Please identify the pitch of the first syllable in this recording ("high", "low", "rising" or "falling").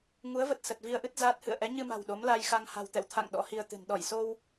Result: rising